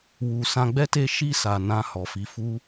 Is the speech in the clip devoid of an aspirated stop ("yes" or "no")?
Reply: yes